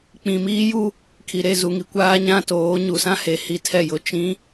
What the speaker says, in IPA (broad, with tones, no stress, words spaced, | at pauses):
k͡pĩ˨miː˦ju˦ | kʰi˨ɾe˦˨zu˨ŋi˨ kʷaː˦ɲã˦toː˨˦ ɲu˨sã˦he˨ hi˦tʰɛ˦˨jʊ˦ t͡ʃĩ˨˦